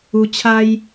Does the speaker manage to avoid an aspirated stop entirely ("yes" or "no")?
no